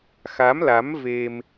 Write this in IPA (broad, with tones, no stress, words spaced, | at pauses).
xa˨˦mla˨˦mve˧m